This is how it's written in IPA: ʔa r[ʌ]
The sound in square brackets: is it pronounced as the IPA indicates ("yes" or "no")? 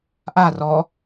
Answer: no